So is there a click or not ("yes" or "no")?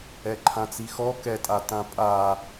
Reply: yes